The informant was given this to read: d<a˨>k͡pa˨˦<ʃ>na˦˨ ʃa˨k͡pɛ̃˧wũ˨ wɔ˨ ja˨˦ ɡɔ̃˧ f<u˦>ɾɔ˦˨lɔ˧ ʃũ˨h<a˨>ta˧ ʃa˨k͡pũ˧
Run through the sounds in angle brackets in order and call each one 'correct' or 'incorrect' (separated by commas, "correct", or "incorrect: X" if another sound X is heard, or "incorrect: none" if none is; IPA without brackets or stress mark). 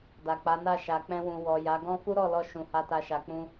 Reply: correct, incorrect: none, correct, incorrect: a˧